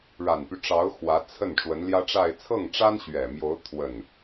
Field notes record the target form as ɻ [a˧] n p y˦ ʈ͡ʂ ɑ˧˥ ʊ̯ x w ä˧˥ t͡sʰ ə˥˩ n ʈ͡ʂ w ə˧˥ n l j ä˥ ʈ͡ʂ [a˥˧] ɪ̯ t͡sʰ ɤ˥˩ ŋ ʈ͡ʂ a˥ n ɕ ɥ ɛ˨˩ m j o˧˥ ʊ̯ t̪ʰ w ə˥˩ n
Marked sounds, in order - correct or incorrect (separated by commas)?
incorrect, correct